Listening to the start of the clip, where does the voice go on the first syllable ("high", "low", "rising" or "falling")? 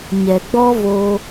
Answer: low